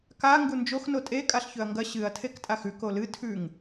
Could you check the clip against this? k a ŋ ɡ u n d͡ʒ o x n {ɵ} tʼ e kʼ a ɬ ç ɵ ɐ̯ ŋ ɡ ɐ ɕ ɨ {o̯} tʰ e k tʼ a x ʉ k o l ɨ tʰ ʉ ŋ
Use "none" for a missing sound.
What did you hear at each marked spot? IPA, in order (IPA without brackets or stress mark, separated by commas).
o, ɐ̯